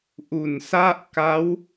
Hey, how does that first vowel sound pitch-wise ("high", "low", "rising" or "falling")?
low